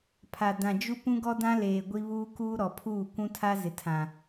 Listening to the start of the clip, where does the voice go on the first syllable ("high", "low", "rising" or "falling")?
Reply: low